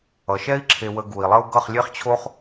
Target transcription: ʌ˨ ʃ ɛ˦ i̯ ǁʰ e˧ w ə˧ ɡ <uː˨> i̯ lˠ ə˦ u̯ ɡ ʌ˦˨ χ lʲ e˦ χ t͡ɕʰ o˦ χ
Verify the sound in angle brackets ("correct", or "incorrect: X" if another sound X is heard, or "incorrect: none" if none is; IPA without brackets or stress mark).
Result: incorrect: u˨